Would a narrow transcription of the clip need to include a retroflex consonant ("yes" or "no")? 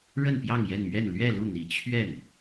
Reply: yes